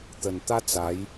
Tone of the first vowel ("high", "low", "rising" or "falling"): low